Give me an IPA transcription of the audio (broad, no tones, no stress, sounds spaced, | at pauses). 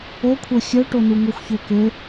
o kʷʰ ə˞ xʲ œ ʈ o n u ŋ o xʷ ç ø k ø